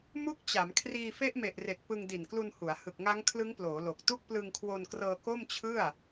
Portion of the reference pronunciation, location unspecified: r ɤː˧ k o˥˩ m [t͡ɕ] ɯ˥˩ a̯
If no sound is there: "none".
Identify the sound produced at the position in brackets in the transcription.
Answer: t͡ɕʰ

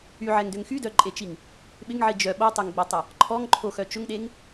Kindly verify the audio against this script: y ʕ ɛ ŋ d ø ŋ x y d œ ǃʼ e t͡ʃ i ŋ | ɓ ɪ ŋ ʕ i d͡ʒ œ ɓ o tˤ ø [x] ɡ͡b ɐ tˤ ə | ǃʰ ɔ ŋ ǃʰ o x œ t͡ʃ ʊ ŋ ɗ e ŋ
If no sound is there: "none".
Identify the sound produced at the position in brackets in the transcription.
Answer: ŋ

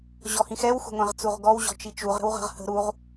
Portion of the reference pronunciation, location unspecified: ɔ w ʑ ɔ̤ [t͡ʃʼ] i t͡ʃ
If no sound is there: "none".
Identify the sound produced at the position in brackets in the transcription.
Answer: t͡ʃ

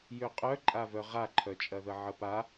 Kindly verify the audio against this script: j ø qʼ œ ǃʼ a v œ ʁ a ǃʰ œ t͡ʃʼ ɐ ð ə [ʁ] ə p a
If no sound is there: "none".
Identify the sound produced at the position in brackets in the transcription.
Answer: ʕ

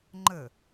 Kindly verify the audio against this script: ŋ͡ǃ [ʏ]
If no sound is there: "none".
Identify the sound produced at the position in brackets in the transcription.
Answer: ə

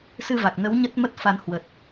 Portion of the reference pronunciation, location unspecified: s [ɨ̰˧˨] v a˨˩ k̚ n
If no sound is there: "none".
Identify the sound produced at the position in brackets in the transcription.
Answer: ɨ˧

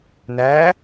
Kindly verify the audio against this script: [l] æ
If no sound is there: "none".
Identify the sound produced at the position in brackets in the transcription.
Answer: n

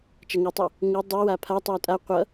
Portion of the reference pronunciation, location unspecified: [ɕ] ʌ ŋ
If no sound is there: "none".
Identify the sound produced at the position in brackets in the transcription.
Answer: t͡ʃ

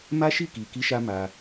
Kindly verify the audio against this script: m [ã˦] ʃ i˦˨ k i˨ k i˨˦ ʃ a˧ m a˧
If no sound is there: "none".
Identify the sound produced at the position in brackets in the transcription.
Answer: a˦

